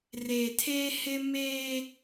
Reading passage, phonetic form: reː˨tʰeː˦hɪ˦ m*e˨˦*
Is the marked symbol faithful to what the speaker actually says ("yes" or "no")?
no